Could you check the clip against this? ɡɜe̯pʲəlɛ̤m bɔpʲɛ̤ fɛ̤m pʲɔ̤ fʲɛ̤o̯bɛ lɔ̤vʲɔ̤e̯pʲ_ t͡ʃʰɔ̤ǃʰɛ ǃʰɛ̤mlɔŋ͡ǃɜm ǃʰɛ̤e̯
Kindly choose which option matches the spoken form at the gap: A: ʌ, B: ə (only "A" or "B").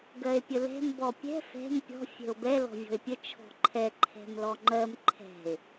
B